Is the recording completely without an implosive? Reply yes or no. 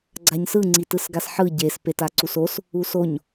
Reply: yes